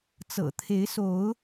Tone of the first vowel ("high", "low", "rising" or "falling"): low